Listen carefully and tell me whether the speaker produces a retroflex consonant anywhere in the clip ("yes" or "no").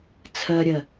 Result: no